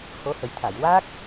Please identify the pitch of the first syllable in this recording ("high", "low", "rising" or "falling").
rising